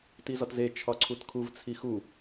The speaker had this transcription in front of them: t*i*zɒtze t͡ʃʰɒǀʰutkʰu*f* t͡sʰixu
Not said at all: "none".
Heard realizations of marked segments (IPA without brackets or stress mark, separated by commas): i, v